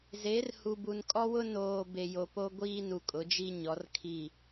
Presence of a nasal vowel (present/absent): absent